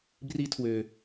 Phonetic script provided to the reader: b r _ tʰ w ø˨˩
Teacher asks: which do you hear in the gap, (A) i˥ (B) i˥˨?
A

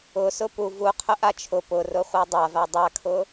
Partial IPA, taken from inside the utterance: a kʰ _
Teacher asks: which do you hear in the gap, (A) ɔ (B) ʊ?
B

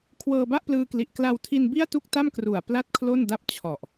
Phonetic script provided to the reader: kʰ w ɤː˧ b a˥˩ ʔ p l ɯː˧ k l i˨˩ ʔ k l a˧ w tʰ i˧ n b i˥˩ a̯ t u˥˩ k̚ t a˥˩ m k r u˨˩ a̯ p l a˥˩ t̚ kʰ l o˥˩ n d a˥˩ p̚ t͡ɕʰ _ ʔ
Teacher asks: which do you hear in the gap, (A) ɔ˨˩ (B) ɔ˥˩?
A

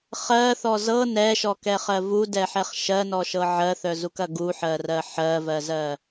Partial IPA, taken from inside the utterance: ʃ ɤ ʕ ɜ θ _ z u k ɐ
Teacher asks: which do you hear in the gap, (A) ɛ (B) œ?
B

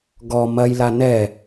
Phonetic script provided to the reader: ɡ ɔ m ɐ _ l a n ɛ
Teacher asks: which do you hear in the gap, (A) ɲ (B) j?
B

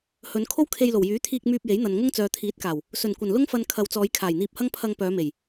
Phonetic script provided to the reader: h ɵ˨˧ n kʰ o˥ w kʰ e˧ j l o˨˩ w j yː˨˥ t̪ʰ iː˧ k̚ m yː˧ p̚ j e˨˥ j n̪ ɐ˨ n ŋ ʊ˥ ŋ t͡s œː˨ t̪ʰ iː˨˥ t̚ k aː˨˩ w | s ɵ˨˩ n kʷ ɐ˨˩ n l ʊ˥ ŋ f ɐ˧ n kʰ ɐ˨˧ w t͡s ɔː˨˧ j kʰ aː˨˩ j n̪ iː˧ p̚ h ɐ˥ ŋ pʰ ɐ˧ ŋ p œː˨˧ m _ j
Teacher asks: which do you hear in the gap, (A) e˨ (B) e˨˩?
B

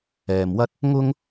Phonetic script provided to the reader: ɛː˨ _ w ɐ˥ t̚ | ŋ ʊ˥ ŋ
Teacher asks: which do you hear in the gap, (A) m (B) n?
A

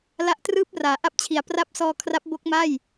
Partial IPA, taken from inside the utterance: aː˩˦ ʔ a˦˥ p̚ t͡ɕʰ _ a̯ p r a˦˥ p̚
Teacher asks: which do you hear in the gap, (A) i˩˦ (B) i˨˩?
A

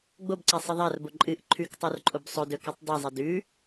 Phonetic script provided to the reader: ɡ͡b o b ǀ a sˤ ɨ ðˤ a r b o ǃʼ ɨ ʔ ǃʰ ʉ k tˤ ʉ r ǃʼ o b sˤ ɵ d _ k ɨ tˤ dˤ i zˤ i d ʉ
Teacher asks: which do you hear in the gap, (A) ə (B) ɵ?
B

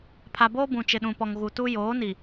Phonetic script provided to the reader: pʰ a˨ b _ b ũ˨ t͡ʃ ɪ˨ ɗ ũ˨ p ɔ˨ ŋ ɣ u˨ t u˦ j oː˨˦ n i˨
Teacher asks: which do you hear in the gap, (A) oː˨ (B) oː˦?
B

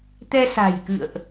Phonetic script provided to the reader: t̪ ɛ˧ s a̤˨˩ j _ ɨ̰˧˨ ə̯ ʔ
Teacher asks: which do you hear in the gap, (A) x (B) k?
B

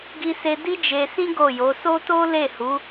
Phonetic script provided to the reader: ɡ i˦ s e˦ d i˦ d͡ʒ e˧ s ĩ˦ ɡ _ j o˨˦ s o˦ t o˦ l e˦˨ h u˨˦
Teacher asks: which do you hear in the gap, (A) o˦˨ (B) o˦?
A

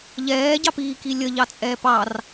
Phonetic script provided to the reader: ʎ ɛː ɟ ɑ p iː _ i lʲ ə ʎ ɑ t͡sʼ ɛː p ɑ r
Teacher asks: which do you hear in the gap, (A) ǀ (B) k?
B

